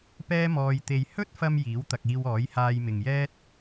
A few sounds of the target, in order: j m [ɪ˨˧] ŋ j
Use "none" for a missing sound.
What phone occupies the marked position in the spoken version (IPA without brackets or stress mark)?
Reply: ɪ˨